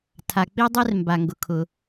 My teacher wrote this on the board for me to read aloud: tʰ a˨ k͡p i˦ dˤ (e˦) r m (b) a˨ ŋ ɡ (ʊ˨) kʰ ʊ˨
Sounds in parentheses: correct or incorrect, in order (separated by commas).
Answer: correct, correct, correct